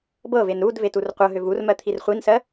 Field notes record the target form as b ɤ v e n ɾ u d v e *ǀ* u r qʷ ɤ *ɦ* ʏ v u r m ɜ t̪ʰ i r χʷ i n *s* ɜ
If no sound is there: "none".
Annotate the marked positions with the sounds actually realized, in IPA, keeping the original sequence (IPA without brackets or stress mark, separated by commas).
t, ɦ, s